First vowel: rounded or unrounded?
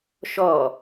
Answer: rounded